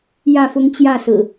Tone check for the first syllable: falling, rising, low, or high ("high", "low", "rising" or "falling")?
falling